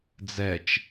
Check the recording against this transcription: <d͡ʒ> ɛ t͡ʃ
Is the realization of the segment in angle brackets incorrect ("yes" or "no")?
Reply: yes